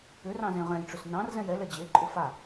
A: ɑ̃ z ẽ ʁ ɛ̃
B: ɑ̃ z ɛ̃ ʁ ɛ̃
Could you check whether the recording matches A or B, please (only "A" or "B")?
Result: A